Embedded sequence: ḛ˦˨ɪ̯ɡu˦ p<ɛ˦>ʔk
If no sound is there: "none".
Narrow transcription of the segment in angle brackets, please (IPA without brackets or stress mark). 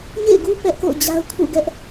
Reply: ɛ˦